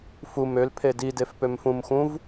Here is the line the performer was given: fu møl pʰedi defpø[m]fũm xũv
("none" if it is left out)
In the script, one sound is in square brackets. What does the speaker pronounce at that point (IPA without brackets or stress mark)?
m